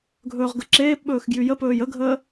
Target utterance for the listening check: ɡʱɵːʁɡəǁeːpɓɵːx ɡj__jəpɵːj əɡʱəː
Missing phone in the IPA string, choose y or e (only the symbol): y